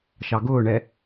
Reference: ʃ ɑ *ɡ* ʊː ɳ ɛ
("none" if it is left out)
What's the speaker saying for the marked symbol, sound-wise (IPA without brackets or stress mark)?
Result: ɡ